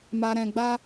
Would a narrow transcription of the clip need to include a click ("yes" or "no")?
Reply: no